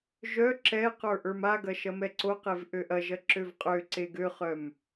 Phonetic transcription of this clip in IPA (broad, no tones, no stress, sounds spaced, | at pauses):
ʒ œ ǁ ɛ q ə˞ ʔ ə˞ m a ɡ ɐ ʃ ɐ m ɛ ǀ o q e v ʔ ø ʔ ɐ ʒ ɐ ǁ ø v qʼ ø ǀ e ɡ ø χ œ m